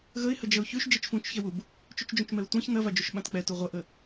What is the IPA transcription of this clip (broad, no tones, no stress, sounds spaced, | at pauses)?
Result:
ɣ ə ɪ̯ h ə d͡ʒ ɐ ʊ̯ ç ʉ ʃ d͡ʒ ɛ t͡ʃ f ũ t͡ʃ ç ɛ w u b | t͡ʃ ʉ t͡ʃ d͡ʒ ũ t͡ʃ m ɛ ʊ̯ tʷ ã ç n̪ ɐ v a d͡ʒ u ʃ ɓ ã t k͡p ɛ t u ʁʷ ɐ ʔ ə